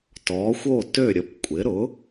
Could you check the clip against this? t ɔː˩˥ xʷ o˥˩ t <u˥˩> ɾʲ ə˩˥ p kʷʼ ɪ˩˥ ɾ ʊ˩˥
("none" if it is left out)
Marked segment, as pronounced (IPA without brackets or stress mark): ø˥˩